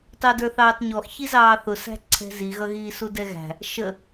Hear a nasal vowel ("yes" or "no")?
no